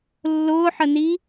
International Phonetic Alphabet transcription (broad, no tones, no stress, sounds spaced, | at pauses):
lː ʊː ħ ə n i